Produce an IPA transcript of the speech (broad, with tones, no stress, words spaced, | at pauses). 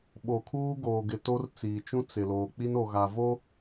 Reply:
ɓo˨kʰuː˦ ɡoː˨ɡɪ˨to˦r t͡siː˨t͡ʃũ˦ t͡sɪ˨loː˨ k͡pi˦no˨ɣa˨vo˦